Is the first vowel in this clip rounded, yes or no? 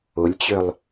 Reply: yes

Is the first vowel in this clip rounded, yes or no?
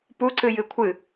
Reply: yes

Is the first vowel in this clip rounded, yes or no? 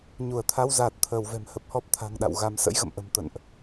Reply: yes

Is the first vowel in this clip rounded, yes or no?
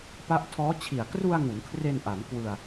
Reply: no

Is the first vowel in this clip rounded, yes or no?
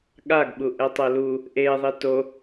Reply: no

